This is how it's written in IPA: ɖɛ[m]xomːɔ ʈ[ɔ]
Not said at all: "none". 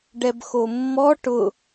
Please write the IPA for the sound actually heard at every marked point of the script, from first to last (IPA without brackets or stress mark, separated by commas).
b, ʊ